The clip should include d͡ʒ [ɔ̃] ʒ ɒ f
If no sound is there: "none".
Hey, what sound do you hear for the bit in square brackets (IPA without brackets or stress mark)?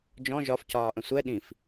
ɔ̃